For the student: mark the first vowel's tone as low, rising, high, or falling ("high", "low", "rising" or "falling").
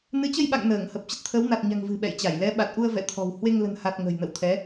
rising